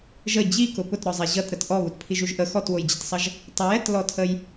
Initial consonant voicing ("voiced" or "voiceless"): voiced